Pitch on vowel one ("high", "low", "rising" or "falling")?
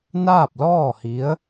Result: falling